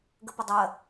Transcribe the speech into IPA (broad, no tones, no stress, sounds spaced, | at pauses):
ɡ ə p ə dˤ ɜ